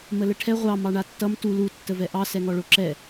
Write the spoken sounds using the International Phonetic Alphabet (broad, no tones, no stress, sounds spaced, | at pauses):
m ə l ə ʈʰ ɛ ʁʷ ɑ m ɑ ɳ a tː ʌ m t u l u tː ə v ɛ ʔ ɑ s ɛ ŋ ɔ ɭ o ǁ ɛ